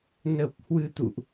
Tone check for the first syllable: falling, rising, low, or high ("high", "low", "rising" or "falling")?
low